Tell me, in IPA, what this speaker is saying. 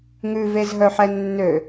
ŋʉvezɦœħɛ nːø

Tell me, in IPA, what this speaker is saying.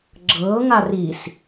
ɡ͡ǁɤːŋa ris

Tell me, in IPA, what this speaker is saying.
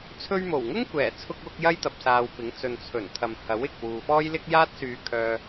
t͡sʰɵ˧ɥmo˨˩wŋʊ˥ŋ kʷɛː˨˩t͡sʰʊ˧k̚wʊ˧k̚ jɐ˥jt̪ɐ˨p̚saː˨wpɪ˨˥ŋ t͡sɵ˨nt͡sʰɵ˨˩nt̪ʰɐ˨m hɐ˨˥wɪ˨k̚ wuː˨fɔː˥jlɪ˥k̚ jaː˥t̚syː˧kʰœː˧

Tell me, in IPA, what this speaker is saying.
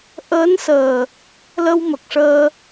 ʔəː˧˥nsəː˨˩ | lə˧wmə˨˩k̚ʂəː˧

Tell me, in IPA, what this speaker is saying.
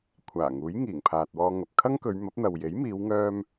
kʷʰaː˨˩ŋuː˨˥jŋiː˨˩ŋ pʰaː˨t̚wɔː˧ŋɐ˨p̚ kʰɐ˥ŋkɵ˨˧ɥmɐ˨˥p̚n̪ɐ˨w je˨˥jmiː˨˧wŋœː˧m

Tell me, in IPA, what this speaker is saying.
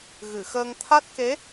ɣɨ˨˩˨xəː˧ŋ t̪ʰa˦˥t̚ke˧˥

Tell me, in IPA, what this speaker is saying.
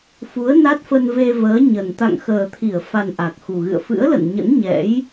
fu˨˦ə̯na˦˥t̚fə˧n ve˧vəː˨˦ ɲə˨˩n t̪a̰˧˨ŋxəː˨˩t̪ʰi˧˩ə̯fa˨˩n ʔa˨˩k̚xu˨˩ɣɨ̰˧˨ə̯ fɨ̰˧˥ə̯lə̰˧˨nɲə̰˧˥n ɲɛ̰˧˥j

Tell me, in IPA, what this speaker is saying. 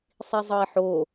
sˤizˤɤi̯ħo

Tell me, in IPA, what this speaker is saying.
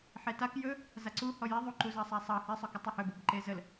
ħetak jɵ | zaǀu hɔjɛ ðˤuǃu zɑsˤasˤɑ hɛsˤɵ kutˤehɵbɤb ǃezəl

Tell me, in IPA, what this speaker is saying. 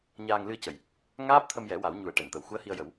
ɲaː˧ŋlɨ˧ə̯cə˨˩˨j | ŋaː˦˥p̚t̪ʰə˧mjɛ˨˩˦ wa˨˩˦wɲu˨˩˦ə̯ ʈɛ˨˩˨nt̪ə˨˩w xu˧˥ə̯hi˧ə̯jə˨˩˦w

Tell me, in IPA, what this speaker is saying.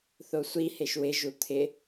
θosʷi heʃwɪ ʒut̪ʰɪ

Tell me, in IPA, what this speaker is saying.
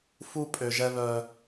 fu˦ pʼø˨ʒɛ˦ βœ˦

